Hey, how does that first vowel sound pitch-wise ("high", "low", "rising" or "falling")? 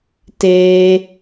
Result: high